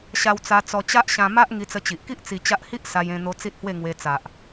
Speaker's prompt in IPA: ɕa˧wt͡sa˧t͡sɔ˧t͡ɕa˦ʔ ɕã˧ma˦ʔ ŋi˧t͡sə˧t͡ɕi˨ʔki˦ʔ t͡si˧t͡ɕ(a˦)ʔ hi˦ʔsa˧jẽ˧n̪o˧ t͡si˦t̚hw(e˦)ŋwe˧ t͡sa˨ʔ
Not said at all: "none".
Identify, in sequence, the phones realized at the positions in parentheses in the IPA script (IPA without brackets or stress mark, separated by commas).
a˦, e˥˧